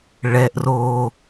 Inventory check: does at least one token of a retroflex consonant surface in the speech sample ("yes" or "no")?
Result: yes